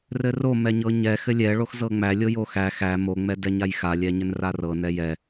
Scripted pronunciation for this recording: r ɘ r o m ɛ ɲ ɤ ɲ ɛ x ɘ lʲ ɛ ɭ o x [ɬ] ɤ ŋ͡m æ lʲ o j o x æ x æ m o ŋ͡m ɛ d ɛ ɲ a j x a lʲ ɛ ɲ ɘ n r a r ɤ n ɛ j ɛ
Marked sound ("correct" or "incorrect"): incorrect